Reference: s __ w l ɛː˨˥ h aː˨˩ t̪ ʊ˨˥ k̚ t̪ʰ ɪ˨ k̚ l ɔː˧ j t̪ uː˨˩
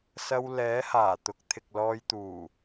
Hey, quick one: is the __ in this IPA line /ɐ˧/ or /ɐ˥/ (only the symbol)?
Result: ɐ˧